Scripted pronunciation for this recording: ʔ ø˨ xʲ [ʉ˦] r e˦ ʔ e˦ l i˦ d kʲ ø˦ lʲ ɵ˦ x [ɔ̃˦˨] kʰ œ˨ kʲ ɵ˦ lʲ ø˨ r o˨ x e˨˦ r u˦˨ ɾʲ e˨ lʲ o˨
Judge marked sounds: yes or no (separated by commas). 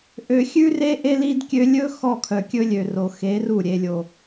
yes, no